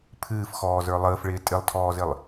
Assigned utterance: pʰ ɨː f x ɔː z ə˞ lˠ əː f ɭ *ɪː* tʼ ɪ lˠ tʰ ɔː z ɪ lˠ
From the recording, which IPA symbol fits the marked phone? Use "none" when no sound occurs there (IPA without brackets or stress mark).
ɪː